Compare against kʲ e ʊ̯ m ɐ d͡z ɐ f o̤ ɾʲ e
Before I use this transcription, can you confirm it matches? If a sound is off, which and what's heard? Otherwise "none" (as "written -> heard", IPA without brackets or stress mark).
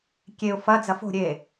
m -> f